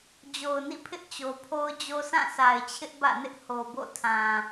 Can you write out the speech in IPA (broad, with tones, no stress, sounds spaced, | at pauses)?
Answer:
d͡ʑ o˨ ʊ̯ n ḭ˦˨ pʰ ɪ˦ ʔ t͡ɕ o˨ pʰ o˦ ʊ̯ d͡ʑ o˦ s ã˦˨ sʰ a˨ ɪ̯ t͡ɕʰ ɪ˦ ʔ b ä̰˦˨ n ɪ˦ ʔ h o˨ b o̰˦˨ tʰ ã˨